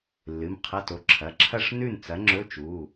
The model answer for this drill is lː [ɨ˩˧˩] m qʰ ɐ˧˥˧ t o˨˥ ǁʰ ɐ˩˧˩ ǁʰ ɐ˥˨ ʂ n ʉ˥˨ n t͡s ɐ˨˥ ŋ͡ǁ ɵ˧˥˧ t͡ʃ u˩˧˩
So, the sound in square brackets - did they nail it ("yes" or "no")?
yes